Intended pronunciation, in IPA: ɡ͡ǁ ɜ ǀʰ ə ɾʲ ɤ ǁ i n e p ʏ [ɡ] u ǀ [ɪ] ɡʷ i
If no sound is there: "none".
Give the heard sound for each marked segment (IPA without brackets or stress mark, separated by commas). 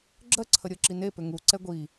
ŋ, ɛ